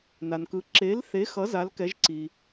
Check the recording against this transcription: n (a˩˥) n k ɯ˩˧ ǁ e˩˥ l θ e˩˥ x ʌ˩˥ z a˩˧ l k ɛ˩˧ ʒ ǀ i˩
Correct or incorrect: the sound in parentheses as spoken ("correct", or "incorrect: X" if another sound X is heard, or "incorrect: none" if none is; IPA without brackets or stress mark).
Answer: incorrect: a˩